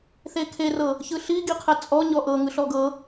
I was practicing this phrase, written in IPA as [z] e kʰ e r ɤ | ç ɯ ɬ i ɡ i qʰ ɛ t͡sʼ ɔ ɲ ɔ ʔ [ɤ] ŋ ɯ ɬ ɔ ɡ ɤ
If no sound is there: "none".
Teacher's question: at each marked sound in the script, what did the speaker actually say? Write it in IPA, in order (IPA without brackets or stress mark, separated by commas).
θ, ɤ